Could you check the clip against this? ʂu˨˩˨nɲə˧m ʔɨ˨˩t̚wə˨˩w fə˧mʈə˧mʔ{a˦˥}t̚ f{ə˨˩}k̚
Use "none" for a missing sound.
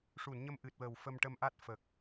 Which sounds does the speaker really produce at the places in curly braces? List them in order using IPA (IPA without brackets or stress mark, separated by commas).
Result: a˦˥, ə˨˩